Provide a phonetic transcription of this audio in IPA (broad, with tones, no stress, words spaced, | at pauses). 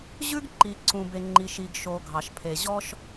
ʑʉ˥ɡǃi˩ǀũ˩be˩ ŋ͡ǃi˩ʃ i˩ɡʃo˩ ɡʱɑ˩ʃpʰe˩ʑɔ˥ʃ